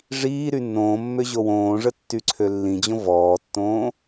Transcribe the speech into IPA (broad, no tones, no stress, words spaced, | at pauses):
ʐiː ɾynːõːmːø ʑowõːʐə tːyǀʰølːĩd͡ʑõ vɔːtːõː